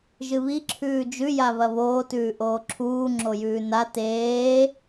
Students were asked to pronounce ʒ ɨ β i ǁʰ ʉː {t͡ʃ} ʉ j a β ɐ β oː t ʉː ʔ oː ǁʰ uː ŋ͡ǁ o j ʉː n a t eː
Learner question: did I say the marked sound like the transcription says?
no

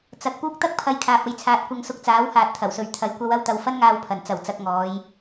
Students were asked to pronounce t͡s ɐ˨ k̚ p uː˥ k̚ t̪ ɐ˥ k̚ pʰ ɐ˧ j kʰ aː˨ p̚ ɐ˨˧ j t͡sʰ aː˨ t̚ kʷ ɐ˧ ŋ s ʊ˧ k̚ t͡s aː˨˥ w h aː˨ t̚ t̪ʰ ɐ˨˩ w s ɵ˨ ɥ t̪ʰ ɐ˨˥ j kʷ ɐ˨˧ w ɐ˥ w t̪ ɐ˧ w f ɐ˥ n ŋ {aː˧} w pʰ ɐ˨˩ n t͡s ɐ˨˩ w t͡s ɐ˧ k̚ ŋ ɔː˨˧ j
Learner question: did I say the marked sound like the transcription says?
yes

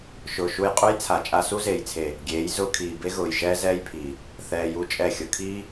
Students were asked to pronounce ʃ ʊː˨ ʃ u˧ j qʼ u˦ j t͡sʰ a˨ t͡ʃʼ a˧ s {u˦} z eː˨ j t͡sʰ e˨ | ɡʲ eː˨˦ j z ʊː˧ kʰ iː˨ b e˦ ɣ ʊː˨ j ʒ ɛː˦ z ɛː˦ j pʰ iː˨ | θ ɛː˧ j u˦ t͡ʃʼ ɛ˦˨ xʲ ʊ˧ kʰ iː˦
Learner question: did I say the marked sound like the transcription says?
yes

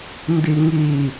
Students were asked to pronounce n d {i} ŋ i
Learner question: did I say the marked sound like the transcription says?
yes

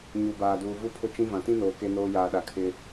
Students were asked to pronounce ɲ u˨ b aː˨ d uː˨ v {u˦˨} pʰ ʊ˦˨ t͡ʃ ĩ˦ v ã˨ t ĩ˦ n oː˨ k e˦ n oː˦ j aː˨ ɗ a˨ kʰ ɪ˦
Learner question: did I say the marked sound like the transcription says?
yes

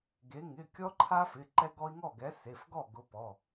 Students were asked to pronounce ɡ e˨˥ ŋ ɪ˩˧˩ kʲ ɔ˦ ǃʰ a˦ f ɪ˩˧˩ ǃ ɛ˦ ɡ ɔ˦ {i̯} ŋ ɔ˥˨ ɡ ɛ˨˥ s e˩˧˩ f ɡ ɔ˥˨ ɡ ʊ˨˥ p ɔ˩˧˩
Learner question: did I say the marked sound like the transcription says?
yes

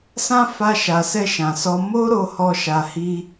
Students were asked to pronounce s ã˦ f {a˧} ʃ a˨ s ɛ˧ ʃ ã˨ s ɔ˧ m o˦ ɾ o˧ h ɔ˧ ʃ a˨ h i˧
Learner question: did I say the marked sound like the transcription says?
yes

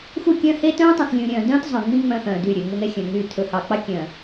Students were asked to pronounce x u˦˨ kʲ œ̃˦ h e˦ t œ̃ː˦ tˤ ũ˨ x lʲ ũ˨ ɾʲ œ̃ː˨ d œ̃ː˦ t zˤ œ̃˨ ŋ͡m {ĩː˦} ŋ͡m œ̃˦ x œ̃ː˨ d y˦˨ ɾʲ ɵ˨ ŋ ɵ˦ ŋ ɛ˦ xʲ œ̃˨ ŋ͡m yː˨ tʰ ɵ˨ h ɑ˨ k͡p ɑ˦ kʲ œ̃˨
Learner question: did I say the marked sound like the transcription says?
no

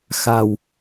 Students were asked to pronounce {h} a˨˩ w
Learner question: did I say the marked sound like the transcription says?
no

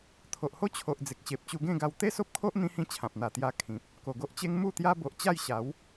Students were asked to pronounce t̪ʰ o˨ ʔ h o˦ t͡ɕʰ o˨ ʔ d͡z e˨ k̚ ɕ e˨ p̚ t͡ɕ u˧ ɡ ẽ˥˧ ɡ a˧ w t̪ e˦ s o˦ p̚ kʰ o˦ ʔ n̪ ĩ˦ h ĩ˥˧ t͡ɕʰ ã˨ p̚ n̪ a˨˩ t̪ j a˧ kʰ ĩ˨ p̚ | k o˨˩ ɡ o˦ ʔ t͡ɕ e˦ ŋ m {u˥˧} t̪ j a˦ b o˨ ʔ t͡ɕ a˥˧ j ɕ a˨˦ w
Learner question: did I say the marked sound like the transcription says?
yes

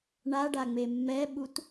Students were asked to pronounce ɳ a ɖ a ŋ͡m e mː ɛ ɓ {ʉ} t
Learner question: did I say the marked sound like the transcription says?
no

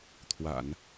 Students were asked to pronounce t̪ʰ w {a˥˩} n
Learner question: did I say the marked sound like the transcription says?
no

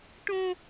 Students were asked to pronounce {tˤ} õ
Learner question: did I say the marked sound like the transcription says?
no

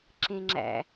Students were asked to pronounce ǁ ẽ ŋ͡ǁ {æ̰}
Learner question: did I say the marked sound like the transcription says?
yes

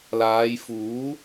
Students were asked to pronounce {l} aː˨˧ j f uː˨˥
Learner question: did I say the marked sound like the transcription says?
yes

